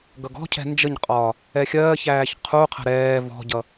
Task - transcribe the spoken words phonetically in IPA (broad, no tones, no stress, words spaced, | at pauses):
ɡʌɡɔ̤cʰɛ̤ nd͡ʒəɲqʼɒː | ɛxʲɜːçæːç qʰuqʰə̤ ɾɛː vɔ̤ɟʌ